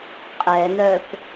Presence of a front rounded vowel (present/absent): present